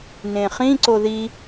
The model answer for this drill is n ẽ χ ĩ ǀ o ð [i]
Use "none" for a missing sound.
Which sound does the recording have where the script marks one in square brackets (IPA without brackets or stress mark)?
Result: i